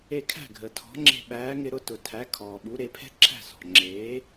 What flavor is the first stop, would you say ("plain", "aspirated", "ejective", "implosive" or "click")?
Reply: aspirated